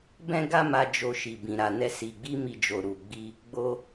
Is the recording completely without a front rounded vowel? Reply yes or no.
yes